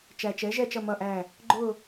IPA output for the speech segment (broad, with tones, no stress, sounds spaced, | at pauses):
t͡ʃ æ˨ t͡ʃ ɛ˩˥ ʒ ɛ˦˨ t͡ʃ ʌ˦˨ m ʌ˦˨ ʔ æ˦˨ | ɡ͡ǃ ʊ˦˨